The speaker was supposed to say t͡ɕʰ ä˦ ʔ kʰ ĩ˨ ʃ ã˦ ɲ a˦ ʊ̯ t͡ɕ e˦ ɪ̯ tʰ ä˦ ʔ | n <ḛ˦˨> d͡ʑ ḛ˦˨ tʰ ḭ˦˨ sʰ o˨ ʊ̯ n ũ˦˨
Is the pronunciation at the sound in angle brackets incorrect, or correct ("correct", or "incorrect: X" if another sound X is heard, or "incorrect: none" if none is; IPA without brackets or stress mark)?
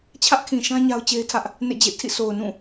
correct